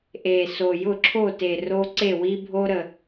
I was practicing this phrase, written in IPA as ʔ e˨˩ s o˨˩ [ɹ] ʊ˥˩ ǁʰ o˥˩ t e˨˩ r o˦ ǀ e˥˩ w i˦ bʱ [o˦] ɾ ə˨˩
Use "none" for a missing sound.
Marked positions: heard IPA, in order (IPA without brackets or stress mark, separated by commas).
j, o˦